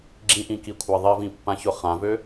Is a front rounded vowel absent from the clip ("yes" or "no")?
no